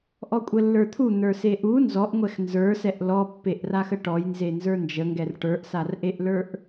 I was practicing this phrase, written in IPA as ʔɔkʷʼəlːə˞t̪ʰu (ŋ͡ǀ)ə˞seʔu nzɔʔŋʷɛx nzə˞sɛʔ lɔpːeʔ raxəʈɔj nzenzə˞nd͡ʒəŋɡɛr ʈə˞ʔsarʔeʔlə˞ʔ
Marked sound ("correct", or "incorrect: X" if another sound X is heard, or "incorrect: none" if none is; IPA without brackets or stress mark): incorrect: n̪